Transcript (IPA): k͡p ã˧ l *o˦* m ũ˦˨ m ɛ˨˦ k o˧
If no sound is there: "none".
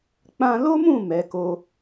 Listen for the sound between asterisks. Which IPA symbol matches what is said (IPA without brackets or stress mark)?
o˦